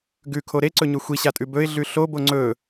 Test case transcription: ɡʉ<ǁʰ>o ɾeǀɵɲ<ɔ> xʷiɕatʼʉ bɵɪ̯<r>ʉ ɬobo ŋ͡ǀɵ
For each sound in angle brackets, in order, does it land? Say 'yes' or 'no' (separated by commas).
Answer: no, no, no